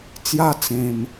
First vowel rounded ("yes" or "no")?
no